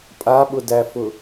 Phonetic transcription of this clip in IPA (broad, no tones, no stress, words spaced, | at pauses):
pʼaɓʊdæfʊ